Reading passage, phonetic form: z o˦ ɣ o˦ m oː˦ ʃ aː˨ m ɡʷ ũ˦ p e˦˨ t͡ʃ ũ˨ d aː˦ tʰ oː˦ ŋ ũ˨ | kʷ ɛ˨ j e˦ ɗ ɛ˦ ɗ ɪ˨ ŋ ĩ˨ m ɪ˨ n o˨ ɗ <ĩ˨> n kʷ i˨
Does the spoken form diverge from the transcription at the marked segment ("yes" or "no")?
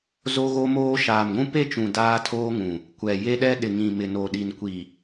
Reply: yes